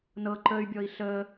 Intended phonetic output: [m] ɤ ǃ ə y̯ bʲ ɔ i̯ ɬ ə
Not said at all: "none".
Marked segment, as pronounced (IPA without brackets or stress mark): n